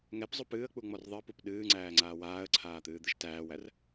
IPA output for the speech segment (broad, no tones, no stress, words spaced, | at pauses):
ŋɛpzˤu pɨːə̯k͡puŋ͡mɔr ðˤɨə̯pup ɗɨːŋ͡ǀæːŋ͡ǀaː waːə̯ǀʰaːt̪ɨːd̪ɨʃ tæːwær